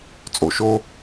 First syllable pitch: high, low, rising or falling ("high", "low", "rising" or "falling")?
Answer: low